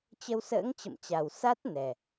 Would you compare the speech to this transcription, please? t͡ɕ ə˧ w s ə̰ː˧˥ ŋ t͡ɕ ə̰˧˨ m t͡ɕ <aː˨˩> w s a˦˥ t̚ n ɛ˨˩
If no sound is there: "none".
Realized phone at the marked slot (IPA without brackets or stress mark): a˨˩